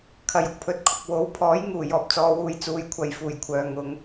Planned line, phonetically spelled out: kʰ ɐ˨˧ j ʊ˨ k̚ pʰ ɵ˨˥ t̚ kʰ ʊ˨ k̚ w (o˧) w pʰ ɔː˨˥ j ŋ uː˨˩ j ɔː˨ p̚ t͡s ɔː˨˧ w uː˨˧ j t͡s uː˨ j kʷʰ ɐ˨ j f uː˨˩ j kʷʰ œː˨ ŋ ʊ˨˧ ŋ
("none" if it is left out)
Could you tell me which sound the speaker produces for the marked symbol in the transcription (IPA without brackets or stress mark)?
o˨˥